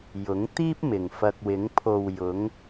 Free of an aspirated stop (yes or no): no